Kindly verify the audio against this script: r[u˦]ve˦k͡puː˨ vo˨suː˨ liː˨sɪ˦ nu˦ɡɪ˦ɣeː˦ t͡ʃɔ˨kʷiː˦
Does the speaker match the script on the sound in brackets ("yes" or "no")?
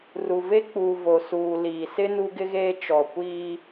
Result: no